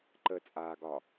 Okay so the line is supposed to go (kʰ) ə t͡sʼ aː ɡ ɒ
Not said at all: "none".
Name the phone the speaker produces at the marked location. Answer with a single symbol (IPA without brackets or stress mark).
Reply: ǃ